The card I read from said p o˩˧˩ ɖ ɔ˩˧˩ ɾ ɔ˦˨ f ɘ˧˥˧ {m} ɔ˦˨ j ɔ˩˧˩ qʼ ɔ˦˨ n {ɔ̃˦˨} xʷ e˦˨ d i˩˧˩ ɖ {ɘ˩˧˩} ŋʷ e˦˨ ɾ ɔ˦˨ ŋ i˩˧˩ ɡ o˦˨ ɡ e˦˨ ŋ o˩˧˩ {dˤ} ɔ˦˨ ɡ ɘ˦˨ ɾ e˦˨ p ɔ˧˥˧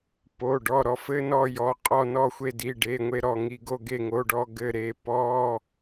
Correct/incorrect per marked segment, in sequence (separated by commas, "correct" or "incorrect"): incorrect, incorrect, incorrect, incorrect